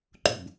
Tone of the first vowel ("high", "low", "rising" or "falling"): falling